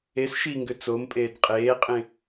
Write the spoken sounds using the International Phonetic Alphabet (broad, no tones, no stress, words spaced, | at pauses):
es ʃiŋɡʏ t͡sompʼeːd qʼeːqʼẽ